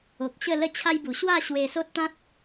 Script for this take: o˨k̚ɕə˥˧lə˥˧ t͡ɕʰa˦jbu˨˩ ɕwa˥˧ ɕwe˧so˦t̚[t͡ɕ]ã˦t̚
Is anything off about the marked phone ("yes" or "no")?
yes